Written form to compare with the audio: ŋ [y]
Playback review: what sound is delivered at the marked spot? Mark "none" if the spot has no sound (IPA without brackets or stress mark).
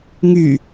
y